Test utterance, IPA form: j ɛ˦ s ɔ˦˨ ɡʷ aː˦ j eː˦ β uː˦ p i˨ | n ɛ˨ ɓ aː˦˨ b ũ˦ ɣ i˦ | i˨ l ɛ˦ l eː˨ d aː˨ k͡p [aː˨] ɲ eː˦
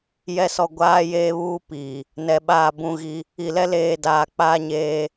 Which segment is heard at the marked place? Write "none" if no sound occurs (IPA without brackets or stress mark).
aː˦